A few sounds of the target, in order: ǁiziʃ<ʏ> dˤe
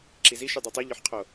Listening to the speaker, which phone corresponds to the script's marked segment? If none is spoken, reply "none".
y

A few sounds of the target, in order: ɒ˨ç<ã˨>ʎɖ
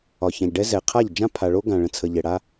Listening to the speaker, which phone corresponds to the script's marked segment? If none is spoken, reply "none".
ã˨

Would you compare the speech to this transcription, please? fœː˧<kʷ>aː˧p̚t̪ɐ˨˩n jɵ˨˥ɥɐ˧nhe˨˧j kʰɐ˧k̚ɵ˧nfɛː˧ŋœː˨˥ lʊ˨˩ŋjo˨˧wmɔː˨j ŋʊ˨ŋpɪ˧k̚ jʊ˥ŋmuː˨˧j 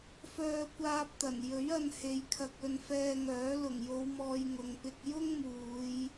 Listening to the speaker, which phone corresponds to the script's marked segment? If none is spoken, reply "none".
kʷ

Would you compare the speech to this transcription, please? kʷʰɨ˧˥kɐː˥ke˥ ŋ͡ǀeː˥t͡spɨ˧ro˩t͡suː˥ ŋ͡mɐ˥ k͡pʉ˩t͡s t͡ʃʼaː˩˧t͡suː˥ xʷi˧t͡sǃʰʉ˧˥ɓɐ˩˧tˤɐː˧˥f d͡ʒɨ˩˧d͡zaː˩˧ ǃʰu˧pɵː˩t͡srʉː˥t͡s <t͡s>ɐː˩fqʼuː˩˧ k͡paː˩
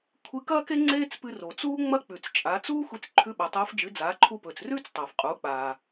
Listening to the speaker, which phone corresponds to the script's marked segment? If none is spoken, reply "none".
tˤ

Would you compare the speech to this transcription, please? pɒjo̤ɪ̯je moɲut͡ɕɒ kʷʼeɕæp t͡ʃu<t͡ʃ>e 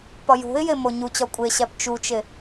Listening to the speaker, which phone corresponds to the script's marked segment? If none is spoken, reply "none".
t͡ʃ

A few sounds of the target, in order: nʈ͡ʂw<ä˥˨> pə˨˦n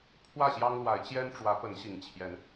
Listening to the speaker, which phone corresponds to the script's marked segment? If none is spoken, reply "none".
ä˨˦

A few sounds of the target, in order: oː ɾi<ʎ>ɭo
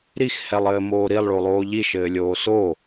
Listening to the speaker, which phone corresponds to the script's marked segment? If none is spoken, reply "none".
lˠ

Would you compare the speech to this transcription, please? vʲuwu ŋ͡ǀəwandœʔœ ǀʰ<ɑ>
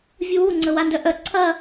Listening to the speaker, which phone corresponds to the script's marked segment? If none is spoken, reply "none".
ɐ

